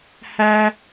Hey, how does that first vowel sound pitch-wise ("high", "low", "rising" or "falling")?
high